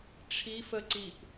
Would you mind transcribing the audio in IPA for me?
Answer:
ʈ͡ʂʰ i f ə ǀ i p

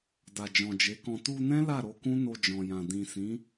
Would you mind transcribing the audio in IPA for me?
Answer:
d a˨ d͡ʒ ɔ̃˨ d͡ʒ e˨˦ k ɔ̃˧ t u˧ n ɛ̃˦ l a˦˨ ɾ o˧ k ũ˦ n o˧ d͡ʒ ɔ̃˨ j ã˨ d ĩ˨ s ĩ˨˦

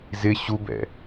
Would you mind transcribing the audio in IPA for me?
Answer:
z ɪ ɕ u b ɛ̰

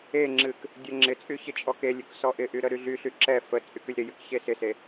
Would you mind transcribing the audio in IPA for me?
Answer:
e ŋ͡ǁ ɨ k | dʲ ə ŋ͡ǁ ɪ t͡sʼ y ç ɪ t͡ʃʼ ɔ k e lʲ y k s ɔ ʔ ɪ ʔ y ɾ ə ɾ y ɮ y ɬ y ǁ ɛ f ə t͡sʼ y k y lʲ ɾ ɪ j ɨ k ç e s ɪ s e

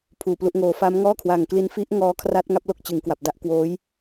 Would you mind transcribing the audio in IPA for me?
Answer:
pʰ uː˨˩ p l u˦˥ ʔ ŋ oː˦˥ f a˦˥ m ŋ ɔː˥˩ kʰ w a˨˩ ŋ k l i˧ n f i˦˥ ʔ ŋ ɔː˦˥ kʰ r a˦˥ t̚ ŋ a˦˥ p̚ l o˥˩ k̚ t͡ɕ ɯ˩˦ ŋ k w a˨˩ p̚ d a˥˩ ʔ k w oː˦˥ j

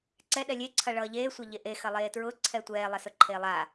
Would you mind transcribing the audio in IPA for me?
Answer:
ǀ ɛ ɗ ɛ lʲ e ǀʰ ɐ ɭ ʌː ʎ eː sʷ ɐ ʎ e ʔ e x ɐ lˠ eː t ɹ ʊ ǀʰ ɛ tʷ ɛː lˠ ɐ s ʊ ǃʰ eː lˠ a

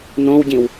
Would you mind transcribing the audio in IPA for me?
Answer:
n õ w ɟ ĩ w

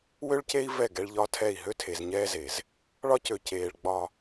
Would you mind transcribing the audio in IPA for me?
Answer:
w ø˦ ɭ c e˦ i̯ v ɛ˦˨ ɡ ɛ˦ ɭ ʎ ɒ˦ tʰ ɛ˦˨ i̯ ɦ ø˦ tʰ e˨ z ɲ ɛː˦ z e˨ z | ɭ ɒ˦ c ø˨ c eː˨ ɭ ɡ͡b ɒ˨

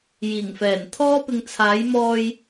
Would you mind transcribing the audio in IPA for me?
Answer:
j iː˨˩ ŋ f ɛː˨˩ n t̪ʰ ɔː˥ p ɪ˧ ŋ t͡sʰ aː˨˥ j m ɔː˧ j

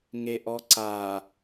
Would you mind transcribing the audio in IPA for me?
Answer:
ŋ e ʔ ɔ ǀ a

